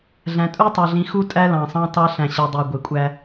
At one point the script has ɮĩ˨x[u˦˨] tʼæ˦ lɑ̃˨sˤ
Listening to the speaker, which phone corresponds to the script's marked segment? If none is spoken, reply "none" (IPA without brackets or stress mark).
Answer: u˦˨